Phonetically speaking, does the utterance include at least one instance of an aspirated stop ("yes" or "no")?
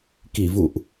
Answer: no